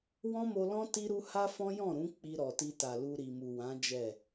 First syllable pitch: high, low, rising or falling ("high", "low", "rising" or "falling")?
high